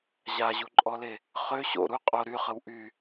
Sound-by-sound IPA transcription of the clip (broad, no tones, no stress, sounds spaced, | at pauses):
ʑ a ʑ u ǃʼ ɔ l e | χ ø ɕ o̰ ɾ u qʼ o ɾ y χ ə w ʔ y